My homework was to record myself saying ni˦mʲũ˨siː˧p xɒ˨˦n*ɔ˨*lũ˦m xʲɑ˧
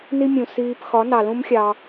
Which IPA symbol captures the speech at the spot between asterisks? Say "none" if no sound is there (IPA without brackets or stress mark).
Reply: ɑ˨